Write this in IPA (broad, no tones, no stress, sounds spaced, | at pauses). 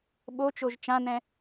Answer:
ɓ o t͡ʃ o ʒ t͡ʃ ã n ɛ̃